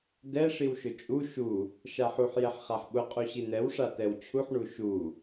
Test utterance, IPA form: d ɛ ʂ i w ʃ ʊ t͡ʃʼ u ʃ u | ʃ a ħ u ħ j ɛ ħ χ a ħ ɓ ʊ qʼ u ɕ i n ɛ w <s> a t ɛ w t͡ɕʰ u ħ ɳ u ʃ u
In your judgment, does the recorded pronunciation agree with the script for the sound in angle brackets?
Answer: no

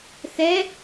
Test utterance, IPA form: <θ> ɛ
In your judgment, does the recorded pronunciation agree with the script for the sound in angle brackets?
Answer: yes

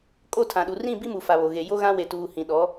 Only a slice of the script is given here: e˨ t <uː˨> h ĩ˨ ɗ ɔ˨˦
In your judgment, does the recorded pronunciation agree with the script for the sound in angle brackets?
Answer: yes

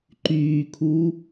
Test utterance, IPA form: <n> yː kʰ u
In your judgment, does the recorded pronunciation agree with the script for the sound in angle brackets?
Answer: no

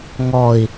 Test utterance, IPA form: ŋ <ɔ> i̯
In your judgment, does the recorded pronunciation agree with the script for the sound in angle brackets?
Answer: yes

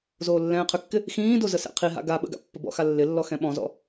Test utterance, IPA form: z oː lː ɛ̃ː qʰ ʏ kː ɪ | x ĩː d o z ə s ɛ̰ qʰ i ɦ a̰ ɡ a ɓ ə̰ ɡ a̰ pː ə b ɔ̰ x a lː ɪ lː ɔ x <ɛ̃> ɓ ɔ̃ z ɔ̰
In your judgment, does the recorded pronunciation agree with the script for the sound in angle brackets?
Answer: yes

